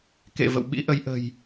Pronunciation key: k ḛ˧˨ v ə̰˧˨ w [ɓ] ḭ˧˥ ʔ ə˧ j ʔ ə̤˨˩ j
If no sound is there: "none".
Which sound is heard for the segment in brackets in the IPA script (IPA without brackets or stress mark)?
ɓ